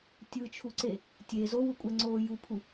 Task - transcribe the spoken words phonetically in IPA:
tʲɯt͡ʃʰuǀe | tʲe zowukʷʼɛŋ͡ǀoː jupʰu

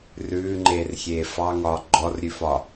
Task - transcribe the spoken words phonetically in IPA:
rʉːŋ͡ǃeːrxʲeː fɑŋɒː ɡ͡ǃɔrɾʲʉfɒ

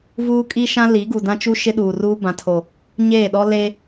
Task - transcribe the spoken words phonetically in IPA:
vuː˦kʼi˦ʃã˦ li˨˦ɡu˨ dã˦t͡ʃu˦ ʃɪ˦ɗuː˨ruː˦ bã˨tʰo˨ | ɲeː˦˨ɗɔ˦ le˦

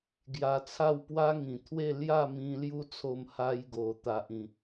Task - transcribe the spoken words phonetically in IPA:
ɡja˧t͡sʰa˥˧w pwa˦ŋĩ˨˩t̪ʰwe˥˧ lja˥˧mĩ˧ lju˦t͡sʰo˧m ha˦jɡo˨˩ t̪a˨ʔĩ˨˩

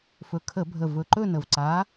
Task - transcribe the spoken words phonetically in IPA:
fɵ˨˩kʰə˧˩˧bʱə˨˩ vɵ˨˩ǃɵ˥˧nə˨˩vǀa˨˥

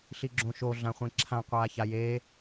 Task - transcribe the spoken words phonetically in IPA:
ɬiɡ͡ǁõʃo ɮãχʷĩǁʰã qʷaːçajeː

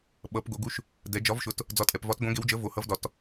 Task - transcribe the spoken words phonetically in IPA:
ɓʌ˩˧pɡo˩˧ɡu˨˥ʃ | dɛ˩˧ d͡ʒɒ˨˥vʃʊ˨˥t | d͡zɒ˨˥tʼɛ˩˧pvɒ˨˥t ɡõ˨˥ɡe˨˥wd͡ʒə˨˥ vo˩˧ hʌ˨˥vdɒ˩˧t

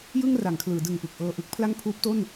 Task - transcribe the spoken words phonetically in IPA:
jɯ˥˩ŋra˩˦ŋkʰlɯː˩˦ dɯ˨˩ŋpɯ˨˩k̚ ʔɤː˧ʔɯ˦˥k̚pʰla˥˩ŋ pʰuː˦˥p̚to˥˩n

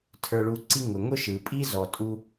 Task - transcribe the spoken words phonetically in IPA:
tʰə˞˨ɭu˨ǀi˦ ŋʊ˩ ŋʊ˥ ʃɯ˩ pʼi˥zɔ˨ tʼu˦

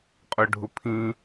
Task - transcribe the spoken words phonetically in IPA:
qʼʊɖʱʊpʰĩ

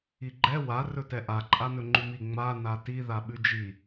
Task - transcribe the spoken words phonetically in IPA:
iɡ͡ǃɛ wa rɵtɛʔa ǃʼanɵŋ͡ǃʉmi ŋ͡ma nati ðaɓʉd͡ʒi

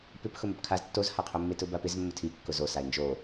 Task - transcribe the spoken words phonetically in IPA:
pɪp xʊmopkʰaz tːozhaqʰomːe tʊbapɪz mːʊtʰi kːʊzo saɪ̯nd͡ʒo

